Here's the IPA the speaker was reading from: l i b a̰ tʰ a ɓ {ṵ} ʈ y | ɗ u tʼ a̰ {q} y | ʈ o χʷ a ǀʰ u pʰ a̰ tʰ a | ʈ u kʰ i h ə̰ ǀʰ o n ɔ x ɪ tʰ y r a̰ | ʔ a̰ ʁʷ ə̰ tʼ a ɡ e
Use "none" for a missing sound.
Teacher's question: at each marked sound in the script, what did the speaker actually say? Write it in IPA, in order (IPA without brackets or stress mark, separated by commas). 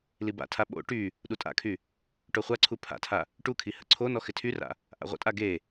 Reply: o̰, kʰ